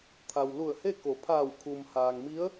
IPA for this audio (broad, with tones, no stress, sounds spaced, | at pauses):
t̪ʰ a˩ w l u˧˩ ə̯ h e˥˨ k o˩˧ pʰ aː˧˩ w kʰ u˩ m h aː˩ ŋ m i˧˥ ə̯